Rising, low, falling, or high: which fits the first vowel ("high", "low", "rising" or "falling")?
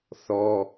high